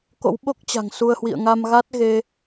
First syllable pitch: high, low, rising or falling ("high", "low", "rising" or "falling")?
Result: rising